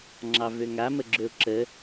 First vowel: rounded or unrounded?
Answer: unrounded